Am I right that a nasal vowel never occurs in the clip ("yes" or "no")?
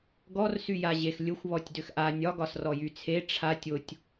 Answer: yes